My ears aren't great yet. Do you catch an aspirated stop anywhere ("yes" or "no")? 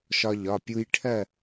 yes